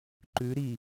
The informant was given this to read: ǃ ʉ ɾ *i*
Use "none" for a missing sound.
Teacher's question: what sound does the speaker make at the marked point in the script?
i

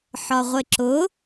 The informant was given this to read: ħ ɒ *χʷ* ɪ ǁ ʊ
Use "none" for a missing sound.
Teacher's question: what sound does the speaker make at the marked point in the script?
ʁʷ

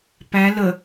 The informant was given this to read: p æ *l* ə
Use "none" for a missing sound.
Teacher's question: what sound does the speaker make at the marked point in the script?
l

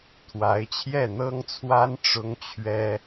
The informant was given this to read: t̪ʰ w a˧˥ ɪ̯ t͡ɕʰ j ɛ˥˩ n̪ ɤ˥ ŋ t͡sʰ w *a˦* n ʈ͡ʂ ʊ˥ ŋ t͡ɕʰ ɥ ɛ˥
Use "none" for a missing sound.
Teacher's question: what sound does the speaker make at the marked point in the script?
a˥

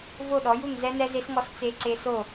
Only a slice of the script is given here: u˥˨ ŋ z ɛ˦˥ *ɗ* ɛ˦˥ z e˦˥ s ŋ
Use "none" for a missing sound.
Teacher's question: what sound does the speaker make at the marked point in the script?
n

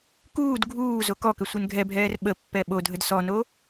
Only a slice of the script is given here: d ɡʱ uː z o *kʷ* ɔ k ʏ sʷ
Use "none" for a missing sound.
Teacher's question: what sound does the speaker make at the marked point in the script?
k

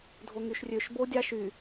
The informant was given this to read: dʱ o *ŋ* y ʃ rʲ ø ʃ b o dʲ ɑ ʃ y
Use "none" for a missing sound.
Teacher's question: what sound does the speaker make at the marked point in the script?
ŋ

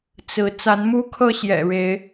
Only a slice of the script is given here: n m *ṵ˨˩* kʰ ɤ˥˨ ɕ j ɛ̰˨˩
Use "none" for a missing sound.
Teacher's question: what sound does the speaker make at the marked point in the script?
u˦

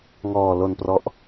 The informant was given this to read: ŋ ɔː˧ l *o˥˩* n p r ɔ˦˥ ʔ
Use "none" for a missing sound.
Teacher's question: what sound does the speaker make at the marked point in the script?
o˧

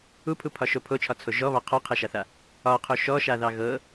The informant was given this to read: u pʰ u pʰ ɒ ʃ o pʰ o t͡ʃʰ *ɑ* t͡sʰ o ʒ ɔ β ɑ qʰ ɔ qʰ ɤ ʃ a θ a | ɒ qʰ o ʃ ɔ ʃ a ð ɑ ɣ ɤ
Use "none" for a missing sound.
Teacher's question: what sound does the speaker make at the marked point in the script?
ɒ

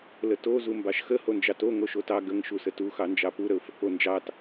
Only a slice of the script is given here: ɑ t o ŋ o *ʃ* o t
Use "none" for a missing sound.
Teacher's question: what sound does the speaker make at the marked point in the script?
ʃ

